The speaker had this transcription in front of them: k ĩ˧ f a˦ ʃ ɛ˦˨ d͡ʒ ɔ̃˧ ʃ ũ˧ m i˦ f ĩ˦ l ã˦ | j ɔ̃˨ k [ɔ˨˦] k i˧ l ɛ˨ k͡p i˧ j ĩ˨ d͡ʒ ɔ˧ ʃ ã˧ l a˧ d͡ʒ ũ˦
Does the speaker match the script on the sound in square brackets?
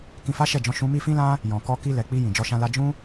no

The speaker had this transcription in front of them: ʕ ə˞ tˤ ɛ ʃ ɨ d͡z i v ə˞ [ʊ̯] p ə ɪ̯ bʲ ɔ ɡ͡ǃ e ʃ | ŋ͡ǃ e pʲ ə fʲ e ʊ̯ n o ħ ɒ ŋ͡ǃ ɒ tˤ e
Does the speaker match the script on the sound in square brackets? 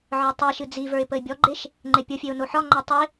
no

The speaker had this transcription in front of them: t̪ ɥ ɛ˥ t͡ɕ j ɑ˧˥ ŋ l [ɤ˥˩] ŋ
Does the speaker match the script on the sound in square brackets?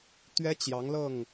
yes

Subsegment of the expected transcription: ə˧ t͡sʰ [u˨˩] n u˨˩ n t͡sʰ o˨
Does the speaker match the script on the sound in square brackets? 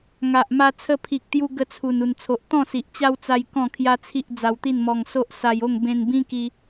yes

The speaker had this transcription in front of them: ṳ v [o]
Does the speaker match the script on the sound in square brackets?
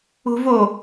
yes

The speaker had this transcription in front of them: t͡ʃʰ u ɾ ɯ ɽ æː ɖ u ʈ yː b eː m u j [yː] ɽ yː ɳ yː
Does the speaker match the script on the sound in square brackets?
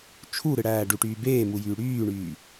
yes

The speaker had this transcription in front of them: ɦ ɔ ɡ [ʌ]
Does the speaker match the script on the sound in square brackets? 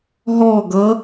yes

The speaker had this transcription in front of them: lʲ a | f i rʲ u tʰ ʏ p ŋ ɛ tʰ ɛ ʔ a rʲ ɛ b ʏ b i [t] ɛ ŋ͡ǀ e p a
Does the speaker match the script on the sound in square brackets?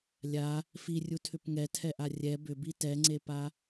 yes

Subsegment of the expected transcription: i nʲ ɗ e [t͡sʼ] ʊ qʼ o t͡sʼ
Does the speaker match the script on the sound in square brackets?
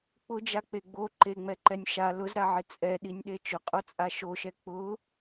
no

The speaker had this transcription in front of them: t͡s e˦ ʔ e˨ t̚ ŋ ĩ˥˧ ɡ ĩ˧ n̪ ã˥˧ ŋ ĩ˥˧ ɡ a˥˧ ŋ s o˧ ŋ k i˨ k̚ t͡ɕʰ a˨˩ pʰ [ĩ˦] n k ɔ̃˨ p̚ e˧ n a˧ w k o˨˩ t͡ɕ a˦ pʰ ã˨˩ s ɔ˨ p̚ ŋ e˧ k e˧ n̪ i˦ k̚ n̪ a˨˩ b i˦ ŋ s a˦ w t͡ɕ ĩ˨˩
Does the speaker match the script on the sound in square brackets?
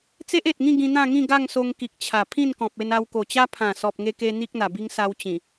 no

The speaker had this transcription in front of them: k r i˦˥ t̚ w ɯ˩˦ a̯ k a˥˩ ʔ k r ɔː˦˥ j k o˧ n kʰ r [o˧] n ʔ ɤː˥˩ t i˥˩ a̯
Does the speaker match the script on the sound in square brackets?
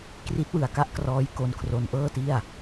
yes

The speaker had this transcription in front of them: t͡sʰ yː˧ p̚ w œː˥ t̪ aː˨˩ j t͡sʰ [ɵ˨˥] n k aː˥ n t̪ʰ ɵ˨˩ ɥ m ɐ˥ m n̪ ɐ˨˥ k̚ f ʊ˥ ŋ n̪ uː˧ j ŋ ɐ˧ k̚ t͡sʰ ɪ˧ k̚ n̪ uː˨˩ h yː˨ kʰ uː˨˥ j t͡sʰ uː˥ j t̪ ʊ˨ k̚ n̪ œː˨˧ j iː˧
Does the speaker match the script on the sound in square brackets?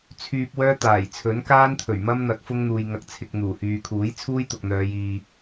yes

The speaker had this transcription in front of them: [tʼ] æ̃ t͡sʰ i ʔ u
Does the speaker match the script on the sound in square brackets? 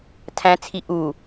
no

